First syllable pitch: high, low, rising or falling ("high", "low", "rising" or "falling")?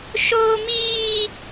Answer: high